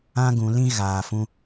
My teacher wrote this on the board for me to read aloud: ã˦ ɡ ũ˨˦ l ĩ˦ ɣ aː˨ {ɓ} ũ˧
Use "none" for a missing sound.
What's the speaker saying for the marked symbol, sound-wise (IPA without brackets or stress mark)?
f